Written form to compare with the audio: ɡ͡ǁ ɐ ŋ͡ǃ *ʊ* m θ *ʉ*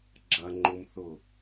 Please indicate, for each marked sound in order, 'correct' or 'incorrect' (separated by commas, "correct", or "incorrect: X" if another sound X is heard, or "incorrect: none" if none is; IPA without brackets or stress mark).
correct, incorrect: ʊ